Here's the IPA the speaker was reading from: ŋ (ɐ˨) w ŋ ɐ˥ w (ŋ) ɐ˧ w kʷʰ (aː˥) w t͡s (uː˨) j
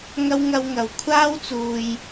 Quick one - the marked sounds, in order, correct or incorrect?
incorrect, correct, correct, incorrect

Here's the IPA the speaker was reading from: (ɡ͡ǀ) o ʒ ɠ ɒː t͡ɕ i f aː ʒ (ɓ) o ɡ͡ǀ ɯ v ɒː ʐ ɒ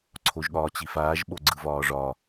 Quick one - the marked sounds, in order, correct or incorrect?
incorrect, correct

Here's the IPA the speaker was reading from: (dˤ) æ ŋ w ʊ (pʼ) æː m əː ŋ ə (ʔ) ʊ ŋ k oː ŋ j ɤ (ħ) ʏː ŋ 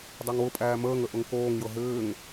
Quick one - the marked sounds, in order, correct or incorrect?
correct, correct, correct, incorrect

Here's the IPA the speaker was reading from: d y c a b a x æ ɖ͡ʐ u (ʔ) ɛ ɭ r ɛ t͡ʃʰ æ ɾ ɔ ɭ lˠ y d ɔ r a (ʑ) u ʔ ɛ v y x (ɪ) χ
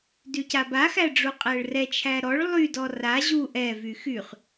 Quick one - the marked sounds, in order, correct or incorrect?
incorrect, correct, incorrect

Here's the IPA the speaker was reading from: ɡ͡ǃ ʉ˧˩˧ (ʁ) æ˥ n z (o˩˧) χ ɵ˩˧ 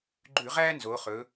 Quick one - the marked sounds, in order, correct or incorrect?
correct, correct

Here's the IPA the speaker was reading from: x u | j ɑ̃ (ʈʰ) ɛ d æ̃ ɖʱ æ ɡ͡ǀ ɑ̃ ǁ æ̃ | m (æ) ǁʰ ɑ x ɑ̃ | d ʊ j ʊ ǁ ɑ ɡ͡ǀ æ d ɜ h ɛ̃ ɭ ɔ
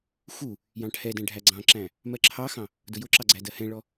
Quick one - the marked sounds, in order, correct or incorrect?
correct, incorrect

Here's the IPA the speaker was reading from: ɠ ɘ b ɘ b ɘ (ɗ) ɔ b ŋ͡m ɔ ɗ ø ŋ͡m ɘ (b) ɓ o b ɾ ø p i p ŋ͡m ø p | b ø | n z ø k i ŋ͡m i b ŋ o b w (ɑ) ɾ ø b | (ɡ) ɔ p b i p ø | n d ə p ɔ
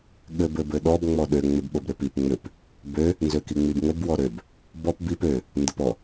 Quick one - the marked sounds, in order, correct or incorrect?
correct, correct, incorrect, incorrect

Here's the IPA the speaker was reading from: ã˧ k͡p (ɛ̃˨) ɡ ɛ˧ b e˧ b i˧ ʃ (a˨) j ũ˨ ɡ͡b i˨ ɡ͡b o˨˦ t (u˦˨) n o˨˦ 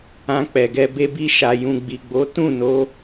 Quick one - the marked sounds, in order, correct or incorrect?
incorrect, correct, incorrect

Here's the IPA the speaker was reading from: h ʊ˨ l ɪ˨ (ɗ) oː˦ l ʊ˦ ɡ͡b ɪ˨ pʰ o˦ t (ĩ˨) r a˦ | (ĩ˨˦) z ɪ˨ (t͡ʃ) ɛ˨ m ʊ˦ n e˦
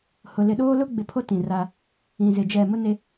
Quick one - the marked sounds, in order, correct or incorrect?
correct, correct, incorrect, incorrect

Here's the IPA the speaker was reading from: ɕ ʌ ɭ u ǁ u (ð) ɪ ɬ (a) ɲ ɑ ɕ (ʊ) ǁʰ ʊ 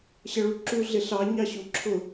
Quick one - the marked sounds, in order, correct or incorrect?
incorrect, incorrect, incorrect

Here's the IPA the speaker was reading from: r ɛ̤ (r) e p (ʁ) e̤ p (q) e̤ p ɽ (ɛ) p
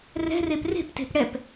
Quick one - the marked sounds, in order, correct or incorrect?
correct, incorrect, incorrect, correct

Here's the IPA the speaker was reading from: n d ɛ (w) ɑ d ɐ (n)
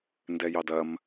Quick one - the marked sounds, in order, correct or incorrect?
incorrect, incorrect

